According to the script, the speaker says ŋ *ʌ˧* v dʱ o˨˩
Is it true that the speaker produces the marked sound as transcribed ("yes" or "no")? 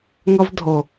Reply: yes